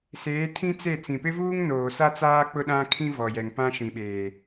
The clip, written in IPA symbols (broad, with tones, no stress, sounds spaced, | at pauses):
s eː˨˦ tʰ ĩ˦ t͡s e˦˨ t͡s ĩ˨ p ɪ˦ v uː˦ ŋ n oː˨ s a˦ t͡s aː˦ k͡p ʊ˦ ɗ ã˦ kʰ ĩ˦ v ɔ˨ j ɛ˨ ŋ p ã˦ ʃ ĩ˨ ɓ eː˨